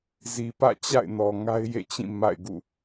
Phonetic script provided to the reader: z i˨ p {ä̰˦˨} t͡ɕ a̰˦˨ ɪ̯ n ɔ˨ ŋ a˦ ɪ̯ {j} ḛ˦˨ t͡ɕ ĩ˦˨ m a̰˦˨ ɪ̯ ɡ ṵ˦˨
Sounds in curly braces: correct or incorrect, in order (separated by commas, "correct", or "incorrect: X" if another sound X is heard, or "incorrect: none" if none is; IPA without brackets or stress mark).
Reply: correct, correct